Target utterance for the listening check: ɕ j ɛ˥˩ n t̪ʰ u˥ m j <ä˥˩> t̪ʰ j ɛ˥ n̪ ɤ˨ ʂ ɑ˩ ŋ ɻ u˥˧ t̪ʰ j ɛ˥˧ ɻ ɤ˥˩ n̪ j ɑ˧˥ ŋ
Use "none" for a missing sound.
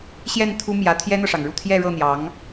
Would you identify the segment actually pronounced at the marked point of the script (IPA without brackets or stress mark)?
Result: ä˧˥